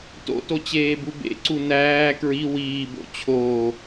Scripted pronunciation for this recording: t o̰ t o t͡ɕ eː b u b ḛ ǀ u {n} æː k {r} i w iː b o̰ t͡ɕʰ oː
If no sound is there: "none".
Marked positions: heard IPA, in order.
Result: n, ɹ

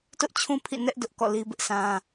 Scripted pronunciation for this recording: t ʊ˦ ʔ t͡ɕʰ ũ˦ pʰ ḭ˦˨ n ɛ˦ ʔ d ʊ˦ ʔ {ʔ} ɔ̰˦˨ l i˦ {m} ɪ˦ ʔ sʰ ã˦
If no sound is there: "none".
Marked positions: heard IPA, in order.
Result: k, b

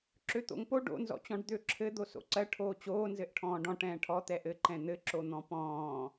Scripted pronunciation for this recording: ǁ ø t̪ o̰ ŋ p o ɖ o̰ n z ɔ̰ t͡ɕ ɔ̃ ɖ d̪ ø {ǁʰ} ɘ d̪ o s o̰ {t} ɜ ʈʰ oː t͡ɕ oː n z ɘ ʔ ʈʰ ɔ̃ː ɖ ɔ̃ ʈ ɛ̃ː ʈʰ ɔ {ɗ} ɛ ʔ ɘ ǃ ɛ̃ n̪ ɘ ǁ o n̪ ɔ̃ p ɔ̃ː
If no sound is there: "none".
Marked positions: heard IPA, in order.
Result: ǁʰ, ǀ, t̪

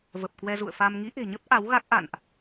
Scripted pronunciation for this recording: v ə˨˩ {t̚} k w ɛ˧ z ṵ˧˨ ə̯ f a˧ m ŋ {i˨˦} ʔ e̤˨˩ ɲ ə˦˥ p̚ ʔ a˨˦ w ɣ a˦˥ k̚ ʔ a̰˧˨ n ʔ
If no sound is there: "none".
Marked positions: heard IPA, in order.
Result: p̚, i˨˦

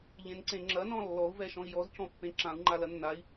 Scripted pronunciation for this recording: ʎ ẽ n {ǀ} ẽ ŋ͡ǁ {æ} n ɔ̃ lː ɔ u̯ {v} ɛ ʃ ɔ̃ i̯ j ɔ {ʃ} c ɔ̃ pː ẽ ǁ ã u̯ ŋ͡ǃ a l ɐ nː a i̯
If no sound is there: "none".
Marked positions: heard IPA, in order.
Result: ǀ, ɐ, v, z

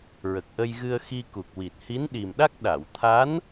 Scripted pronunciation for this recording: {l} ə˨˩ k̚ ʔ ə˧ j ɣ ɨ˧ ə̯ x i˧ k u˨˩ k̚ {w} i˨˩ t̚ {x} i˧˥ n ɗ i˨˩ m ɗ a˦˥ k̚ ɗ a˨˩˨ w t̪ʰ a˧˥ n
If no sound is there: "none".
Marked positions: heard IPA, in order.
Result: ɹ, w, h

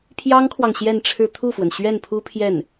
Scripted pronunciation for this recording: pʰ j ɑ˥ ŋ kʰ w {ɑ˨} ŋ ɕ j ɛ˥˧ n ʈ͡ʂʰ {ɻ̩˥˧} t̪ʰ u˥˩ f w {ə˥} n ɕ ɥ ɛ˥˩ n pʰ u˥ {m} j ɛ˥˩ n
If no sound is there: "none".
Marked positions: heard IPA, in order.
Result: ɑ˨, ɻ̩˥˧, ə˩, pʰ

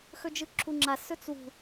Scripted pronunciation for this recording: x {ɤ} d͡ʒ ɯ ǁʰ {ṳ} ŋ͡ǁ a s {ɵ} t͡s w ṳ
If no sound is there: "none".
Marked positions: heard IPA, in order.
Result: ɵ, u, ɵ

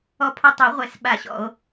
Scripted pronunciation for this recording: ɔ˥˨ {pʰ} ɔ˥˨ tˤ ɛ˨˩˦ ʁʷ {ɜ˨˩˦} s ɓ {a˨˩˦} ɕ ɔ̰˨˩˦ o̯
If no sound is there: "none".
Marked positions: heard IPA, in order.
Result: pʰ, ɛ˨˩˦, a˨˩˦

